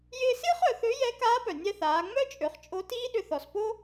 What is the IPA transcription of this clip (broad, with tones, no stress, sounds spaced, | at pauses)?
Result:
j ɪː˧ s ɪː˥ χ œ˩˧ θ ø˧˥ j ɛ˧˥ k aː˧˥ p œ˩ nʲ ɛ˧ θ aː˩˧ ŋ͡m œ˥ t͡ʃʼ ø˩˧ χ t͡ʃʼ o˧˥ t iː˥ ɗ ʏ˧ θ ɔ˩ s p o˥